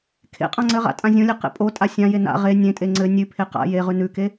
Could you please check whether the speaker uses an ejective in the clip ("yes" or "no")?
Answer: yes